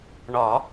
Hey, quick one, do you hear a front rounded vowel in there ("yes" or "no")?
no